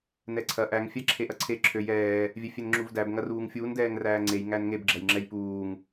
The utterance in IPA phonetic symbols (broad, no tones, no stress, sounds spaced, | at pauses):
n ɛ ǀʰ ɐ ʔ æ ŋ fʲ æ ǁʰ e ʔ ɐ ǀʰ e ǁʰ ø j ɛː | vʲ ɛ fʲ e n ŋ͡ǁ u v d æ b ŋ ɐ r uː ŋ fʲ uː n d ɛː ŋ r æː ŋ͡ǀ e j ŋ æ n ŋ e b ɡ͡ǁ ɐ j ŋ͡ǁ ɛ j p uː ŋ